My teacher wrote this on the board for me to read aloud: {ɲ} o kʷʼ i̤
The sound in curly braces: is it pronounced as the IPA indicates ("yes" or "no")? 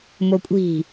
no